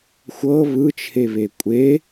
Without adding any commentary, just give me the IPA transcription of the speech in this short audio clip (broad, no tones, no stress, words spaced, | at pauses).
xʷɤ βɯt͡ʃʰeβe kʷʼe